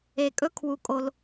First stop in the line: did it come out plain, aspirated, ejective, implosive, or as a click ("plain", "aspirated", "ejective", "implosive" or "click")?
ejective